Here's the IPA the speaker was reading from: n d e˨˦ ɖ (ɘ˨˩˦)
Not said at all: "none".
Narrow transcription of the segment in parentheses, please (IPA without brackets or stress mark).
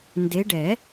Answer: ɛ˨˩˦